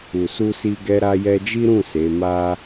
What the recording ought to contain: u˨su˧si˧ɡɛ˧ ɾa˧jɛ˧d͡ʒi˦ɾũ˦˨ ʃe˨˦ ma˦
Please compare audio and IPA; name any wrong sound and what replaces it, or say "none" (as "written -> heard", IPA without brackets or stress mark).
ʃ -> s